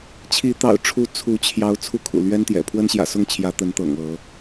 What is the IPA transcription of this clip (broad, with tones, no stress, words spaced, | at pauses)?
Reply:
t͡ɕʰi˨˦ t̪ɑ̰˨˩ʊ̯ʈ͡ʂʰu˨˦ t͡sʰu˨˦t͡ɕʰjɑ˨˦ʊ̯ t͡sʰu˦kʰṵ˨˩lɥɛ˦nt̪jɛ̰˨˩ pʰwə˦nɕjä̰˨˩sʊ˥˨ŋt͡ɕʰjä˨˦ t̪ə˨˦nt̪ɤ̰˨˩ŋ ɤ˨˦